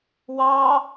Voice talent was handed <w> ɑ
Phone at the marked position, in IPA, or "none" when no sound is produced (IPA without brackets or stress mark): w